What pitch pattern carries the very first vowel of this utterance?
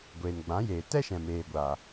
low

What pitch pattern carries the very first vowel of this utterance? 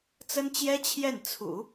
high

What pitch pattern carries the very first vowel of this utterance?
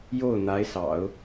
falling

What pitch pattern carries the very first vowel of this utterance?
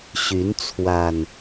rising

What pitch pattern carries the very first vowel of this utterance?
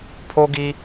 high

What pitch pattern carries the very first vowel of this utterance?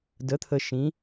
rising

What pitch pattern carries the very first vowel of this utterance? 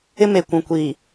high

